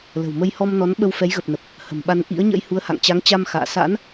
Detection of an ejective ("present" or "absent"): absent